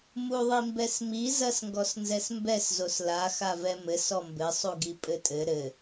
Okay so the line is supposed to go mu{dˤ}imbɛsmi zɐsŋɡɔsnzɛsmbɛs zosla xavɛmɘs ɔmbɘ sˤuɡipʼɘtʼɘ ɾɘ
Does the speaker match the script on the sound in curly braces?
no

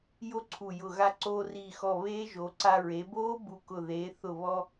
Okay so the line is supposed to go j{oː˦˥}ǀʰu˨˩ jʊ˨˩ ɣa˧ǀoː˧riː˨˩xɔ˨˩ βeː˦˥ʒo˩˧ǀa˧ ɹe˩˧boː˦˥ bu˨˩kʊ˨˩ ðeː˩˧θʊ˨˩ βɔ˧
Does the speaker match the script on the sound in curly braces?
no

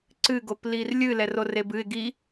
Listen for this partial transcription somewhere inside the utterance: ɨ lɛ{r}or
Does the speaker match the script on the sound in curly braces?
yes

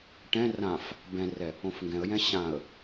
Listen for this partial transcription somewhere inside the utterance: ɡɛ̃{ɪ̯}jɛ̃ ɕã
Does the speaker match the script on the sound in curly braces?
no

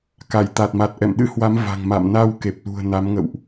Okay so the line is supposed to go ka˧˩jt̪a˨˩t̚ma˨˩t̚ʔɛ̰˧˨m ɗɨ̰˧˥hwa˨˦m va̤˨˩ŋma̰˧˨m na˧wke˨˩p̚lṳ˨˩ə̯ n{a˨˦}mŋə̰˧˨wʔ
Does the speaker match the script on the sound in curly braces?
yes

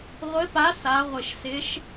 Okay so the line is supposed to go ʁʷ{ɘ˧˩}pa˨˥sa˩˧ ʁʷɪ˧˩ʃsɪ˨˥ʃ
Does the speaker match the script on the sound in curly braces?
no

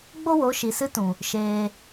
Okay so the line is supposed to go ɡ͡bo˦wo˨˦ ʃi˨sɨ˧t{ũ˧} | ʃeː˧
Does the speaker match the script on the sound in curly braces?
no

